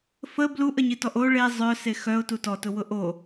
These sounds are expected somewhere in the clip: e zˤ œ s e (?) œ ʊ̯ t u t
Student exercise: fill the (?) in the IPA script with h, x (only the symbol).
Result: x